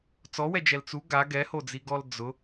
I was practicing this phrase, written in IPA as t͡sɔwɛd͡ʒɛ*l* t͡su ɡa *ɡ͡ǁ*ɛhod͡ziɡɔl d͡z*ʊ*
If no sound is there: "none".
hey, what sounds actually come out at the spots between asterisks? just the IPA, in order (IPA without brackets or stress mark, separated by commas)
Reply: l, ɡ, ʊ